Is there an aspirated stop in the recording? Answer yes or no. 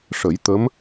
no